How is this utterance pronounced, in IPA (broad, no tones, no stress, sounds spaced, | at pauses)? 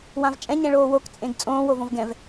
w ã v t͡ʃʼ ɛ̃ ɲ ɛ̃ ɭ oː w o k t͡sʼ ẽ ɡ t͡sʼ õː w o v õ v ɡ ɛ̃ v